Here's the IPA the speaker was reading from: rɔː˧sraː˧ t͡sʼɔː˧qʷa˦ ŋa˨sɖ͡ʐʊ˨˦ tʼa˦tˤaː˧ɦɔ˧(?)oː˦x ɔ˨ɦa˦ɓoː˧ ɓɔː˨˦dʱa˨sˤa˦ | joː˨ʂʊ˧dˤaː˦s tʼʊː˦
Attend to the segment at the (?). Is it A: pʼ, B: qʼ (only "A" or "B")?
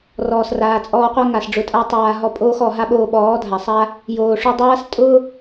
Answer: A